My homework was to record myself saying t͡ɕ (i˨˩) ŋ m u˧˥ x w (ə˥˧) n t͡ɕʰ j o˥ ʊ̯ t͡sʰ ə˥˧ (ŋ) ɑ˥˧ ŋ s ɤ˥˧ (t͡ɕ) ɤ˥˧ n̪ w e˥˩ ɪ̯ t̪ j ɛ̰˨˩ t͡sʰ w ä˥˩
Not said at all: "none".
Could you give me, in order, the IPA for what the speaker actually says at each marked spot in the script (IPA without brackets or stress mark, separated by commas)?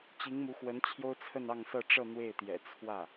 i˧˥, ə˧˥, n, ʈ͡ʂ